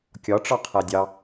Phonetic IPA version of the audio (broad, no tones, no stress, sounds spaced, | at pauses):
kʲ ɒ ʈ͡ʂ ɒ qʰ æ dʲ ɑ